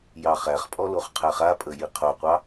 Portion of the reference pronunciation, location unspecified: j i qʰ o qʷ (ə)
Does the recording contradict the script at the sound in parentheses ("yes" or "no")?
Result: yes